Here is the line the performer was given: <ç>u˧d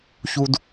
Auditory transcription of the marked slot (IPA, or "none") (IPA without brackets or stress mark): ç